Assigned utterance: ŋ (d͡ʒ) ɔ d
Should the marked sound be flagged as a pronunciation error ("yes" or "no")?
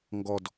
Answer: yes